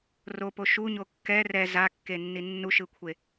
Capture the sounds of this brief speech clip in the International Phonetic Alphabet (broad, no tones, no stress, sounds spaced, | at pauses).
r o p o ʃ u ɲ o kː ɛ r ɛ z a kː e nː i nː u ʃ ɯ kʷʰ e